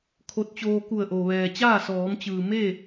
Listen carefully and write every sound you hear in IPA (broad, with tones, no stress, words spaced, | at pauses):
kʰo˧t̚t͡ɕoː˧ ku˧˩ə̯ʔo˩ʋɛː˩t͡ɕaː˥˨ sɔː˩˧mt͡ɕɯː˩me˥˨